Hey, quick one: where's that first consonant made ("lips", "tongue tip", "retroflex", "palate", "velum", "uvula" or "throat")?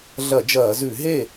tongue tip